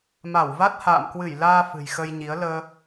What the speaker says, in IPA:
ma˧˩wva˦˥t̚ ha̰ː˧˨mkwɨ˧˩jlaː˧ fɨ̤˨˩jxə˧jɲi˨˦ə̯ ləː˧

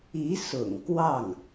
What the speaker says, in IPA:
i˧˥sʊ̰˨˩ŋ kwɑ˥˩ŋ

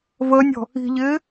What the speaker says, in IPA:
vəːnʲɔ̤ | i̤ʎɪː

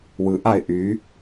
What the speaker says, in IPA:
wɯʔaɪ̯ ʔy

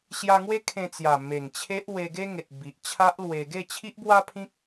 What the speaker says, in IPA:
ɕja˧ŋwe˦ kʰẽ˧t͡sja˨˩ me˨˩ŋt͡ɕʰe˦ʔ we˧ɡe˦ŋe˨t̚ bi˨ʔt͡ɕʰa˦ʔlwe˧ ɡe˥˧t͡ɕʰi˦ʔbwa˦pʰĩ˦k̚

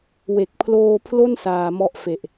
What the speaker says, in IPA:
we˨˩k̚pʰloː˧pʰlo˥˩n saː˧mɔ˦˥ʔfe˨˩ʔ

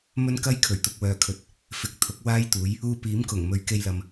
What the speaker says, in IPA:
mɵ˥nkɐ˥j kʰɵ˨˩ɥt̪ʊ˨k̚wœː˨kʰɵ˨t̚ | fɪ˨k̚ t̪ʰʊ˨˥k̚waː˥jt̪uː˨˥j | uː˧ piː˨˥mkʊ˨˩ŋmɵ˨˧ɥ ke˧jlɐ˨m

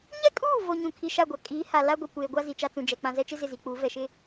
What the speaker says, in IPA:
ɲɛ˦˨kʼuː˦˨vo˨ ɲũ˨kʰi˨ ʃa˦˨ɡʷa˨ kʼiː˨˦ha˨ la˦ɡʷi˨ kʷeː˨ɡʷa˦ zi˨t͡ʃa˦t͡sũ˨d͡ʒɛ˨ k͡pã˨zɛ˦t͡ʃɪ˦ zɪ˦˨zi˨k͡puː˨˦ vɛ˨ʃɪ˦

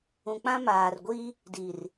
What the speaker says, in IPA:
ũ˨k͡pã˦ maː˨rɡʷi˦ | di˨r

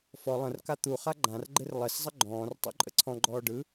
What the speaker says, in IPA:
fɔ lˠə̃rka t̪uχa ɡ͡ǃãrɡ͡ǃɪr lˠɪszˤə ɡ͡ǃɔ̃ːrtˤo̰ǃʼə̰ ǀʰɔ̃ɡ͡ǃɔː ɖɯ

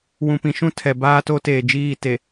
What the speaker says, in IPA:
wũ˨pĩ˨ʃũ˦ tʰɛ˨ baː˦to˦teː˨d͡ʒiː˦˨ te˨

